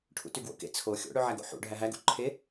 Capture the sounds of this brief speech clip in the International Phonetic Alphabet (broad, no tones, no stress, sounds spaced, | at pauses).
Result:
ʈʰ ṵ t y ɡ w o̰ k ḛ t͡sʰ o xʲ o̰ ɽ ø ʕ æ ɡ o̰ ħ ṵ ɖʱ æ ɦ æ ɡ ṵ ǃʰ e